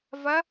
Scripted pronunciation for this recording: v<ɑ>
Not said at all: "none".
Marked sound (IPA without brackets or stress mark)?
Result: ɐ